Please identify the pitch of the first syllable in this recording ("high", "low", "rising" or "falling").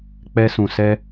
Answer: high